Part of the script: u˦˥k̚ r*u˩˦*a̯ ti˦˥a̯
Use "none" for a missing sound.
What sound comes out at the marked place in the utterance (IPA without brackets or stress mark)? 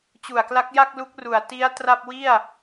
u˩˦